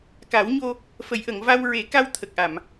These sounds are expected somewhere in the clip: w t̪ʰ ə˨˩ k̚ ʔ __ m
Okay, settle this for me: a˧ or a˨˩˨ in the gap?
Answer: a˨˩˨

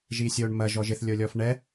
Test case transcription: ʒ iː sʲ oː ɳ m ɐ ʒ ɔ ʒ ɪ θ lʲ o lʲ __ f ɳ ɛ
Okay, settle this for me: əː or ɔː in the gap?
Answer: ɔː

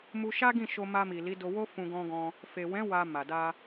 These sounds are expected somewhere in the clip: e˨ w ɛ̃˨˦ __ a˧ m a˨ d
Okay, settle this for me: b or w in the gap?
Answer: w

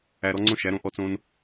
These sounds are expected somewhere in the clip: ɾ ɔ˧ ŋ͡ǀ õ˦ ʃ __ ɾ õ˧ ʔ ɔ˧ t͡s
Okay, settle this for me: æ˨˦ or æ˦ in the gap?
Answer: æ˨˦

